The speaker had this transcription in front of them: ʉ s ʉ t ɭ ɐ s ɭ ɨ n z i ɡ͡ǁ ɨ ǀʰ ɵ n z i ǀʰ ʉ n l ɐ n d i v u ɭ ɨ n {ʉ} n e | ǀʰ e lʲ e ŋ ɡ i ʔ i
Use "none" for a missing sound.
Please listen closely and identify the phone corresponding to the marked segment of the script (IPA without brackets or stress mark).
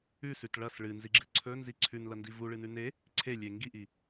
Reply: ʉ